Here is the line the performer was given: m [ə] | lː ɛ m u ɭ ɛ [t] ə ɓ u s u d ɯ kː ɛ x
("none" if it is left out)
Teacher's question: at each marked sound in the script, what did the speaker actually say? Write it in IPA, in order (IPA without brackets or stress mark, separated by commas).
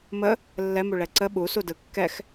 ə, ǀ